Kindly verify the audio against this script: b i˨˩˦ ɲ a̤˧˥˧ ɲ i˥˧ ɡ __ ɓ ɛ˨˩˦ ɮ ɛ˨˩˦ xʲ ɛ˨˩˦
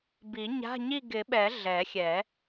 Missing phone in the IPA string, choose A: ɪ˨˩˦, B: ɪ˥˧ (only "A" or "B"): A